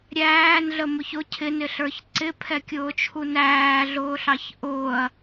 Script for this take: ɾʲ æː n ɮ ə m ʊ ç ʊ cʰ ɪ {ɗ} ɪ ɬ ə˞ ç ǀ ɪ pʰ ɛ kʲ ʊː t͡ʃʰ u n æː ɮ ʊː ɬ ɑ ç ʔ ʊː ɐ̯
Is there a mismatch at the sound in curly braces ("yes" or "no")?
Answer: yes